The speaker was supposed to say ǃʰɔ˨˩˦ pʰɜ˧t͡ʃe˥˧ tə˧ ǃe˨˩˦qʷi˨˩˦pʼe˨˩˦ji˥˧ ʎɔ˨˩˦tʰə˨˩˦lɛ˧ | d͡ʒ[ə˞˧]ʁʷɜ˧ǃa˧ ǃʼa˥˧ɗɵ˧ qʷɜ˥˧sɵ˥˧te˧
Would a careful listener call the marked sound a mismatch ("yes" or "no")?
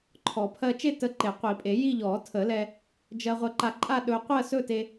yes